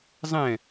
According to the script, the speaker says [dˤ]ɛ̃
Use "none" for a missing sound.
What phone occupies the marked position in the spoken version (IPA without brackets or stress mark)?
zˤ